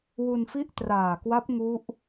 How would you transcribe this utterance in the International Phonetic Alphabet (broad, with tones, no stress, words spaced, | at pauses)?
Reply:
wu˧nfi˥˩ʔ traː˨˩kwa˦˥p̚ ŋu˦˥ʔ